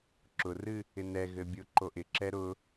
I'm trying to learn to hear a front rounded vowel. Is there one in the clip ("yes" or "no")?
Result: no